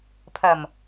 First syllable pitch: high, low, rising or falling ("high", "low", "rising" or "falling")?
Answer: low